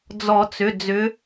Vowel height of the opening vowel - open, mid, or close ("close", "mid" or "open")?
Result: mid